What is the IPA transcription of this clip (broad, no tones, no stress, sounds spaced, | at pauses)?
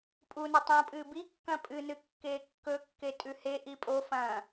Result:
pʼ u n ɐ tˤ õ pʼ ɨː b i kː ɐ̃ pʼ ɨ n ɨ kː eː kː ɵ kː e tʼ ʉ h e ʔ i pʼ o f ɐ̃